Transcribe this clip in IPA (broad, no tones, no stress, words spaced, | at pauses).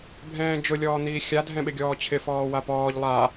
bʱɛ̃ːd͡ʒʊ lʲɔːn̪iːxʲa dʱɛ̃ɓɪɡʲɔːt͡ɕʰɪ fɔːwapɔːʎ lˠa